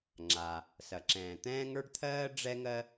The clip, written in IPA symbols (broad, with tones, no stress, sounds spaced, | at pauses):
ŋ͡ǁ a˩ | s ɐ˩ ǁ ɛ̃ː˩ t̪ ɛ̃ː˥ ŋ ə˞˥ ɖ t̪ʰ ɜː˥ ɖ͡ʐ ɛ˥ ŋ ɜ˥